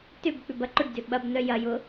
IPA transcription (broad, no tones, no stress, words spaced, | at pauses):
tʏb k͡pʏbɐǃʊɖdʏ ɓɐbnœ jɐjʊ